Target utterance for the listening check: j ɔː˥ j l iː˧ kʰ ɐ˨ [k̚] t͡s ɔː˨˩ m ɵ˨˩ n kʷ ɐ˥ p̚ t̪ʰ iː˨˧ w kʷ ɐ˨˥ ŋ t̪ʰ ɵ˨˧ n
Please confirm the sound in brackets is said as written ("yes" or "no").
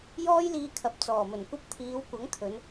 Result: no